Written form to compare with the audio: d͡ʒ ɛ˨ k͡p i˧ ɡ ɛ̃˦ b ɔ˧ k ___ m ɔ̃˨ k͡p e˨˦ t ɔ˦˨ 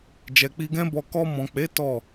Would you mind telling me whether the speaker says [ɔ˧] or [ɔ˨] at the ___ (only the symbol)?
ɔ˧